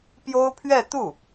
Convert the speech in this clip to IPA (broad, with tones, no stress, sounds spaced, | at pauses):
p j o˥ ʊ̯ pʰ ɥ ɛ˥˧ t̪ u˥˩